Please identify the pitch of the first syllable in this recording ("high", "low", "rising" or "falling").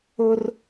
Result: high